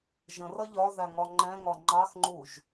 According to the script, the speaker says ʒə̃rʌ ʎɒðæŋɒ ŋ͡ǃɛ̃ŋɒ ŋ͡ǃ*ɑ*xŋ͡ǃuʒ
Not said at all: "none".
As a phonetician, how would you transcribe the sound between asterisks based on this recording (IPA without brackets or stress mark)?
ɑ